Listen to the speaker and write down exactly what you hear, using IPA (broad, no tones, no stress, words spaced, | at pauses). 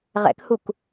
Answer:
ʁɛ̰khuk